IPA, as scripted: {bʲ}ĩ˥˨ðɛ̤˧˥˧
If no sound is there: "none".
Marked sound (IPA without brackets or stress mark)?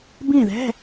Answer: b